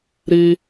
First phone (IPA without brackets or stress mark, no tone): ɾ